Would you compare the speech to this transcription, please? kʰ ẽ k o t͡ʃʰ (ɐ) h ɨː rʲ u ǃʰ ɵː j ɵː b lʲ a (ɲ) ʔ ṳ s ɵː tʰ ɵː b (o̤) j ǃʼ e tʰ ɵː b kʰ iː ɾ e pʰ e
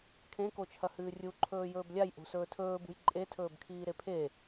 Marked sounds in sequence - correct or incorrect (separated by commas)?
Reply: correct, incorrect, incorrect